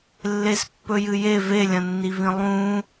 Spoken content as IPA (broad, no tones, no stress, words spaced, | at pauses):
lːespːɵjɨje velʲɐ̃nːivĩ lˠũ